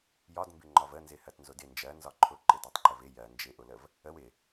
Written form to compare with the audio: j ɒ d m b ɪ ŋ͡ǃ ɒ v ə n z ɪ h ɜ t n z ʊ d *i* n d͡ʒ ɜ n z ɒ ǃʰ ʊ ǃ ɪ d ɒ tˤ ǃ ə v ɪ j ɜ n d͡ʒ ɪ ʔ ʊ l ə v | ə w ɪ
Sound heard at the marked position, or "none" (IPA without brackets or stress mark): ɪ